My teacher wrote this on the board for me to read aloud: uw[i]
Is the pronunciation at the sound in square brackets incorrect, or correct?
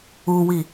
correct